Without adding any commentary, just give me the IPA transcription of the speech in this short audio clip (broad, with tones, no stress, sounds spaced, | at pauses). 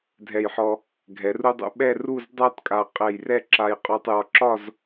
dʱ ɛ˧˩ j ħ ɔ˧ | ɡʱ ɛ˩˧ r u˧ dˤ ṵ˧˩ ɓ ɛ˥˧ r u˥˧ z dˤ a˥ t kʼ a˧˩ qʼ ɛ˧˩ j r ɛ˥˧ ǁ a˧ j qʼ ɔ˧ tˤ j ɒ˧ ǁ ɒ˥˧ z